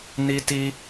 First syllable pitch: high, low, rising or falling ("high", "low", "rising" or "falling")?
high